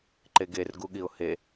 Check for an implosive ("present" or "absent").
present